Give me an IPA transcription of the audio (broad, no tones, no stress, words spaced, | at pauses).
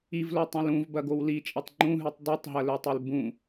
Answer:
ivlotˤõl ũvbɐɡow lit͡ʃʼɐtˤ ŋ͡ǃũɦʉtˤ dˤitˤɦɐlɵtˤel bũ